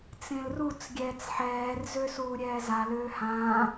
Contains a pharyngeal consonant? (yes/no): yes